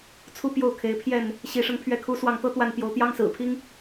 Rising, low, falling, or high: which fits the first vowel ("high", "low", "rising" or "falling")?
falling